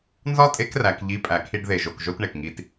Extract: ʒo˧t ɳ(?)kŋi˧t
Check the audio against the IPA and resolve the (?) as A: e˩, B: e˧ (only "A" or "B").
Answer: A